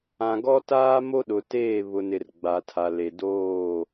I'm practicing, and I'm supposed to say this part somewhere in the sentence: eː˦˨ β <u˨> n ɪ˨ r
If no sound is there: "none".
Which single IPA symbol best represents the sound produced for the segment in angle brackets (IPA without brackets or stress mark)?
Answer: ʊ˨